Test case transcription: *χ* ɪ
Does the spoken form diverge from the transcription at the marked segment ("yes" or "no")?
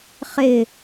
no